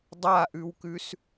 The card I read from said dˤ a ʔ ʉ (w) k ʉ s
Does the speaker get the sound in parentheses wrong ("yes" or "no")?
no